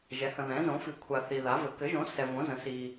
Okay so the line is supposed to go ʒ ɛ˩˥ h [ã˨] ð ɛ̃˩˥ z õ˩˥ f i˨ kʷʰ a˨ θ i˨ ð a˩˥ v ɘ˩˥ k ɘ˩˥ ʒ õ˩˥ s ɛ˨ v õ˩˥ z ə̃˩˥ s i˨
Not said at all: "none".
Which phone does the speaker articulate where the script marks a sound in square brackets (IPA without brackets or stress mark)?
ə̃˨